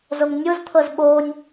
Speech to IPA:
z o ŋ nʲ o z t̪ʰ ɤ z ɓ o nʲ

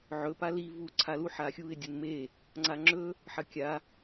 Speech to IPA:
ʕ ɵ p a l i v u ǀʰ a l u ħ a xʲ u ɪ̯ dʲ u n m e | ŋ͡ǀ a ŋ͡ǁ ɵ | ħ ɐ kʲ a

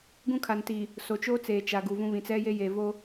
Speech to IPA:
ɡ ũ˦ kʰ a˨ n t iː˨ | s o˨ t͡ʃ oː˦ t͡s eː˨ t͡ʃ a˨ ɡ u˨ v ũ˦ β ĩ˨ t͡s ɛ˦ j e˦ j e˨ v o˦

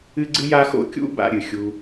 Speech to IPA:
ɨ˥ ɡ͡ǀ ɨ˥ j a˥ x o̰˥ kʲ ṵ˥ b a̰˥ ɾʲ ɨ˩ xʲ u˥

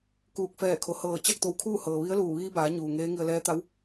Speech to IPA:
k uː˧˩ k̚ f ɛː˧˩ kʰ o˩˧ h ɤː˧˩ t͡ɕ a˥˨ k̚ t̪ o˧˩ w kʰ uː˥˨ h ɤː˩ ʋ i˧˥ ə̯ l uː˧˩ ʋ iː˧ b aː˩˧ ɲ uː˩ ŋ eː˧˥ ŋ i˧ ə̯ l ɛː˧˥ t̪ a˧˥ w

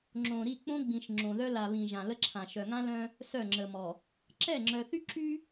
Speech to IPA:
ŋ͡ǁ õ˨ ɾ i˦˨ k͡p õ˦ ɡ͡b ĩ˨ ʃ ŋ͡ǁ õ˨ ð œ˦ l a˨ β ĩ˨ ʒ ã˨ l ə˦ ǁʰ ã˨ ʃ œ˨ ŋ ã˦ l œ̃˦ | s œ˦˨ ŋ͡ǁ ə˨ m ɔ˨ | ǁ ɛ˦˨ ŋ͡ǁ œ˨ θ y˦ ǁ y˦

